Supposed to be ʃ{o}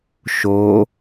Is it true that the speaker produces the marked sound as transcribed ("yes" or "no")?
yes